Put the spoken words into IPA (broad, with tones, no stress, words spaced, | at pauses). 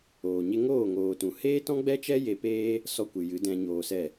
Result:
oː˨ɲe˦ ŋoː˦˨ŋoː˨tũ˨ heː˦tɔ̃˦ɡ͡bɛ˦t͡ʃɛ˦ je˧peː˦ | sɔ˧kʷɨ˨ jɨ˨˦dɛ̃˧ ɲoː˧sɛ˦˨